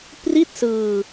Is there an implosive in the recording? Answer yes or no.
no